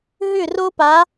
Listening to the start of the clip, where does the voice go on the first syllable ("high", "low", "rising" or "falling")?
falling